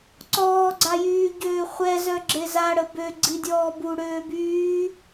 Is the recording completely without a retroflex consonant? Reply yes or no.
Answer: no